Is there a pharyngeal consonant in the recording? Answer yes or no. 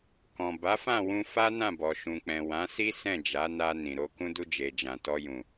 no